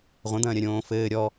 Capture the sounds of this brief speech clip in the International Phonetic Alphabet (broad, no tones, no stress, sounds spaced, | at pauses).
ʁʷ ɐ̃ d̪ ɐ̃ː ɾʲ ɐ ɾʲ õː f ɘː ɾʲ ɔ